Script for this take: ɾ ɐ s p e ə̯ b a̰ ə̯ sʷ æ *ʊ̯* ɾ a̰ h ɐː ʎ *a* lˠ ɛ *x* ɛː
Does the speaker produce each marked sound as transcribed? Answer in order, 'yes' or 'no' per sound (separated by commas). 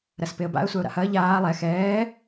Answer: yes, no, yes